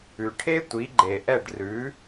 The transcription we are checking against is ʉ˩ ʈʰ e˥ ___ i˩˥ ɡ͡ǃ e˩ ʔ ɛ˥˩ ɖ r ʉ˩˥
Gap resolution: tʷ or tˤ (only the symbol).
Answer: tʷ